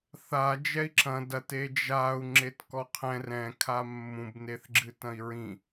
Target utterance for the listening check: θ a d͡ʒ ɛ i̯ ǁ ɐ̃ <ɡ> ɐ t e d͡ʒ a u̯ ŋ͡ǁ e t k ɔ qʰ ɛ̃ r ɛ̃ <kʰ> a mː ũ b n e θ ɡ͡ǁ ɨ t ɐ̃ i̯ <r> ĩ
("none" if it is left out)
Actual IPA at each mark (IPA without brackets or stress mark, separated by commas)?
d, kʰ, ɹ